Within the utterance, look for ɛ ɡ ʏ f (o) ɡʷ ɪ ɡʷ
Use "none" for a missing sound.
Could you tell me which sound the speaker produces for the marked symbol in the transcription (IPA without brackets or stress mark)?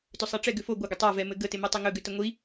o